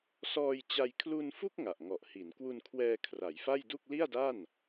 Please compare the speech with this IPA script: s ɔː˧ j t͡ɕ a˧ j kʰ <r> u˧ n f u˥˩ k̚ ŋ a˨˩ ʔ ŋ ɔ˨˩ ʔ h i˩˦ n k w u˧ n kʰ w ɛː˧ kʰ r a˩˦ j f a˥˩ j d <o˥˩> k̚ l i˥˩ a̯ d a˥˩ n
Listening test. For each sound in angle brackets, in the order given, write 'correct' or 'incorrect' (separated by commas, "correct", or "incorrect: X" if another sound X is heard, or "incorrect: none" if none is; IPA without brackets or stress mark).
incorrect: l, incorrect: u˥˩